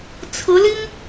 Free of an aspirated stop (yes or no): no